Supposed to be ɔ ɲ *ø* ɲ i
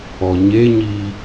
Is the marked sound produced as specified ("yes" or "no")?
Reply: no